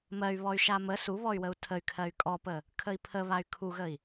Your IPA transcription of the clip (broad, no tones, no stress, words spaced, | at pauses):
mɜy̯βɔy̯ ʃamə suβɔy̯wəu̯ tʰəy̯kʰɜy̯ kʼɔpə | kʰəi̯pʰəβay̯ kʰuɣəi̯